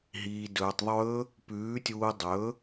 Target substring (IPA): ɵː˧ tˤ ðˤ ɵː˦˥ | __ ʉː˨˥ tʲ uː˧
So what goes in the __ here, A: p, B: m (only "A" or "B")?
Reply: A